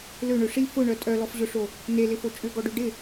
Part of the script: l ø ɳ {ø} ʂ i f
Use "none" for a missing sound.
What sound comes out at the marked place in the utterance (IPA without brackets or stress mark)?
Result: ø